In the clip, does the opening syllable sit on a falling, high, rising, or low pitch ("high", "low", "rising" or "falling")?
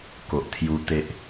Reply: low